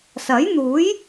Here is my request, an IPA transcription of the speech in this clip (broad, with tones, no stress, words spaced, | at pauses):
sɐ˨˥jn̪uː˨˥j